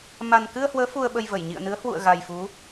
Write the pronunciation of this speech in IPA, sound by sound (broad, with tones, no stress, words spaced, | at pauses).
ma˨˩nkɨ˧ə̯hwəː˨˦ fu˧ə̯ɓə˧j və˧˩jɲḭ˧˨ə̯nɨ˨˦ə̯ hwṵ˧˨ə̯ɣa˨˩jfu˨˦